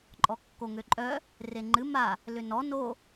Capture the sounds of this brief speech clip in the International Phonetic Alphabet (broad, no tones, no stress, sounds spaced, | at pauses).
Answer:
ǃʼ ɔ kː o ŋ ø ǃʼ œ | r e ŋ͡ǃ ɨ m a | l ʏ n ɔ n o